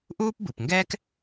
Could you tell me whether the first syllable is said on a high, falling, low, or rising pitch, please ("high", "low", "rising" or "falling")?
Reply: high